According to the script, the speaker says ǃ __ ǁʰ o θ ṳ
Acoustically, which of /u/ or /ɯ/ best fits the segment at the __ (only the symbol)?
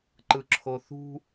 ɯ